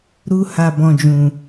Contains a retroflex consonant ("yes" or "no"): no